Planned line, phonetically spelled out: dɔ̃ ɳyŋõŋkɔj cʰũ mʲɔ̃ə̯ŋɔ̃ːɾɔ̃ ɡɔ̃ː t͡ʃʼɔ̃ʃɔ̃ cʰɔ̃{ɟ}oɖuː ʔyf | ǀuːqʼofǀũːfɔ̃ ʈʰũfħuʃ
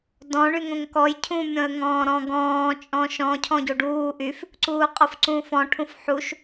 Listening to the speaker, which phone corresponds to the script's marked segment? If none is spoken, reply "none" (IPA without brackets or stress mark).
ɟ